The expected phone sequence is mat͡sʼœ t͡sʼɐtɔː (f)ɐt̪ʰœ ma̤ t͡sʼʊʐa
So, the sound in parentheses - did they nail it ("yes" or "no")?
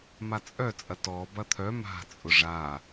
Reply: no